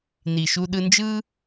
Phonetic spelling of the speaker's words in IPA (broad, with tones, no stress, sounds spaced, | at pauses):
n i˨ ʃ u˧ ɗ ɯ˧ n d͡ʒ ɯ˦